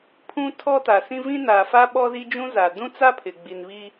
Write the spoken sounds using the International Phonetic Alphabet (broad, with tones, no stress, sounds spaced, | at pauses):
pʰ ũ˦ tʰ ɔ˦ t a˨ s ĩ˦ v ĩ˦ n aː˨ f a˦ ɓ ɔ˦ z i˦ d͡ʒ ũ˦ z a˨ d ũ˦ t͡s a˦ pʰ ɪ˨ ɡ͡b i˨ n β i˦